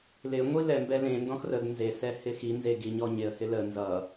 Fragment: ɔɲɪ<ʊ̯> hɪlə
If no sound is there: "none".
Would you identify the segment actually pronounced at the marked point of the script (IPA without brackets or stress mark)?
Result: ə̯